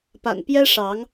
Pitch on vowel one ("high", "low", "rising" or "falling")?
low